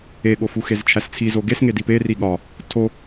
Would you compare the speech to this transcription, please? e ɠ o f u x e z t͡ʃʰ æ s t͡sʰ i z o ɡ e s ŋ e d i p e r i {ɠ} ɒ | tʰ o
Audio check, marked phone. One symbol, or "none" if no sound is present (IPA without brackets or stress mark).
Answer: ɠ